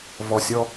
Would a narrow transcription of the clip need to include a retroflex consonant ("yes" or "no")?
no